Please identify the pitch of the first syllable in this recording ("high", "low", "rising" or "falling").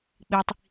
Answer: high